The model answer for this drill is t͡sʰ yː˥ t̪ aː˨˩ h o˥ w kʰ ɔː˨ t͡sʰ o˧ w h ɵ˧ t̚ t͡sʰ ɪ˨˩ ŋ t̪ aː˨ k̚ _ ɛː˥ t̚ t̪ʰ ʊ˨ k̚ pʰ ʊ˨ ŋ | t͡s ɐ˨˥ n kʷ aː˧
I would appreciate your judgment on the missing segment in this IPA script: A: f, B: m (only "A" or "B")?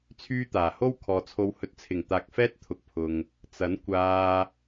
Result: A